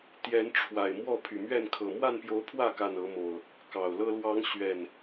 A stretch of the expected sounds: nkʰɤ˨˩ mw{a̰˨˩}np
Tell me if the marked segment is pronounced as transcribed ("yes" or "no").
no